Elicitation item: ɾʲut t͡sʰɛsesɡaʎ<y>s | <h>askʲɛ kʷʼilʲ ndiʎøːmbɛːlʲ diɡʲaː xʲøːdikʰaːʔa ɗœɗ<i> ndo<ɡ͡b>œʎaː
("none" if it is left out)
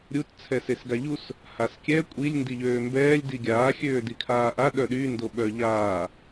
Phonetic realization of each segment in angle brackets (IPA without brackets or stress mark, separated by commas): u, h, y, ɓ